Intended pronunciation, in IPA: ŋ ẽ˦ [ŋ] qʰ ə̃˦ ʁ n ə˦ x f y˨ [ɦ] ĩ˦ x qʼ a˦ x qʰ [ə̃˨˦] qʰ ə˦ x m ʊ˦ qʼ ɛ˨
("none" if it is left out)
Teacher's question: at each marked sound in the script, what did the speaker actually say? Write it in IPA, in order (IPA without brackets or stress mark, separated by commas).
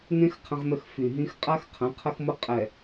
x, ɦ, ə̃˨˦